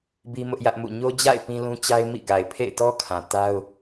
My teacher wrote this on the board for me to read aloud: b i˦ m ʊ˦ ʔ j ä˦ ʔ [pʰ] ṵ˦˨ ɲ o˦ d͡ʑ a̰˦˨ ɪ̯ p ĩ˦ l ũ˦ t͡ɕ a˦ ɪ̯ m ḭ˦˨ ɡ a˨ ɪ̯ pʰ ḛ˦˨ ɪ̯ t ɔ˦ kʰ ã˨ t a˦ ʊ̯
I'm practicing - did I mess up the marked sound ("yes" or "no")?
yes